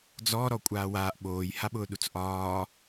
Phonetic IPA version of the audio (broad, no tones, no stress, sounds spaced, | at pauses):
d͡z ɔ ɾ ɔ kʷʼ aː w aː ʔ ɓ oː j h a ɓ ʊː ɗ u t͡s ʔ ɒː